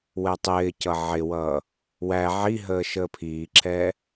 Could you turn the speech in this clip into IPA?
wɛtˤɪːcʌ ʕɪwʌː | wæ ʕiɦəː ʃəːpʰiːǁʰɛː

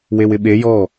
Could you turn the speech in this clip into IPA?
wewɪɓe jɔ

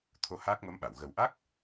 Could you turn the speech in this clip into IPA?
t̪ʰo˧ haː˦˥k̚mə˧˥mɓa˨˩˨w ɣə˨˩wʔa˦˥k̚

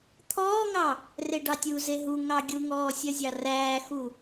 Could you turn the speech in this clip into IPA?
t̪ʰɔːŋɑ | reɖɑtʲuze ɦu ŋɑɡʲuŋɔː sʲœzʲɑræːxu

